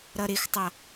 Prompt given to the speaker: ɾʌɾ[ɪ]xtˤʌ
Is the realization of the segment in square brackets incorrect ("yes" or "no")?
no